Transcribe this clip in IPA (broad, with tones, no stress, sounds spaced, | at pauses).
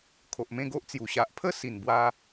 kʰ o˨ ʔ m ẽ˥˧ ɡ o˦ ʔ t͡s j u˨˩ ɕ a˨ ʔ pʰ ə˦ s i˨˩ n b w a˧